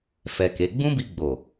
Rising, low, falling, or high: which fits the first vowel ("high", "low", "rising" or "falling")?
low